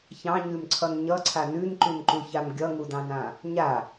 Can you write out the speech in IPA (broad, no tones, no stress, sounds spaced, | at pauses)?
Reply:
ç ɑ̃ ɲ ʉ m ǀʰ ʌ n ɲ ʌ ǀʰ a n ʉ n ǃ ʉ n ǃ u ç a m ɡʲ ʌ ŋ u d ɑ̃ n ã | ɲ a